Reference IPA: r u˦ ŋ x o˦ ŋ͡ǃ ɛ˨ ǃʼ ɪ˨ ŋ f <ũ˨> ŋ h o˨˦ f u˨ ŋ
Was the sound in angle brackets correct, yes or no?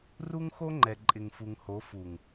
no